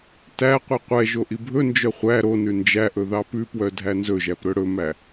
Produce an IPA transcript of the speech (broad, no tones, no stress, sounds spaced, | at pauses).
t æ qʷ i qʷ ɛ ʒ o ʔ i bʱ ɵ n d͡ʒ œ χʷ æ ɾ o n ʉ n d͡ʒ æ ʔ ɵ ð ɑ p ʉ p w œ dʱ æ n z ɵ ʒ æ p ɾ ɵ ɽ ɵ m æ